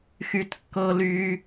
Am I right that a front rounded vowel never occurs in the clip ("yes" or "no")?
no